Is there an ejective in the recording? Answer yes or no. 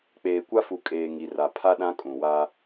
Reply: yes